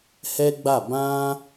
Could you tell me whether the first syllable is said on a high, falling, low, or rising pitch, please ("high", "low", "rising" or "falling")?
high